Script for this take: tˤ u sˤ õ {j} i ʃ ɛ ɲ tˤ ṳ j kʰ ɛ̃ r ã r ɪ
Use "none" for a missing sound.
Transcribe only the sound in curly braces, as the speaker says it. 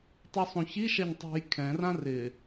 ç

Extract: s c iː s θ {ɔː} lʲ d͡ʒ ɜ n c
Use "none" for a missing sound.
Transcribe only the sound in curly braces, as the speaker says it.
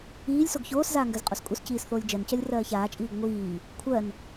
oː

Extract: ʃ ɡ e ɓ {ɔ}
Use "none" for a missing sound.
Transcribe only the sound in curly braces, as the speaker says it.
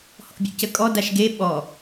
ɔ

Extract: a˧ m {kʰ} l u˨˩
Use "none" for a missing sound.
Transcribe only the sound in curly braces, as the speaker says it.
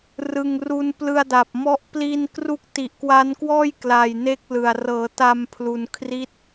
pʰ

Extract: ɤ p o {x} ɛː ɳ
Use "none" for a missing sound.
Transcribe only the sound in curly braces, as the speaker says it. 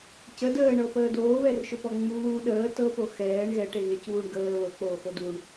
x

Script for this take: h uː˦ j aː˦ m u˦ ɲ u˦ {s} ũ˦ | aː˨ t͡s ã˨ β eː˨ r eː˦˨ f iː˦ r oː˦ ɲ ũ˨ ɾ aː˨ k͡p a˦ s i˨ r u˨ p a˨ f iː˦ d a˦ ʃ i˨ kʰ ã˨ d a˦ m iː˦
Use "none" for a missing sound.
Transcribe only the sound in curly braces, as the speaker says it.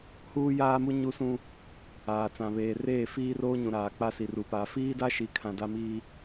s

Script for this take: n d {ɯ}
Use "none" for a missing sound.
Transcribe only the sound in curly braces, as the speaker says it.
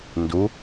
u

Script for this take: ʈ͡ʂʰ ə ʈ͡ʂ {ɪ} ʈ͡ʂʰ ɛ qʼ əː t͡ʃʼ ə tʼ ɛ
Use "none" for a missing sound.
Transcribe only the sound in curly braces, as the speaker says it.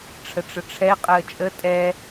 ə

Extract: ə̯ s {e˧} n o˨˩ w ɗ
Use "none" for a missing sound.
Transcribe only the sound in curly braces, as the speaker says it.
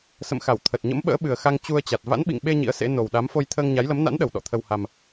ḛ˧˥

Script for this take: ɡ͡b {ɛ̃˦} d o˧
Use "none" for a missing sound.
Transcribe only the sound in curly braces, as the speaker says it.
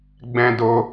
ɛ̃˦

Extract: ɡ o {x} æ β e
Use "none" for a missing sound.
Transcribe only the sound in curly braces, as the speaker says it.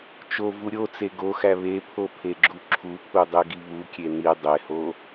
x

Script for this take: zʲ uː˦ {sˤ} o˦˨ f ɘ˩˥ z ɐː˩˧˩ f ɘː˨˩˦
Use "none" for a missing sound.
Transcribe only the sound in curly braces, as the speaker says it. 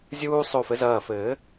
sˤ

